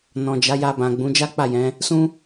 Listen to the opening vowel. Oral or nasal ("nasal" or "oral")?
nasal